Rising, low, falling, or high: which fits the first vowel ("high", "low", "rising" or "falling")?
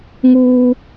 high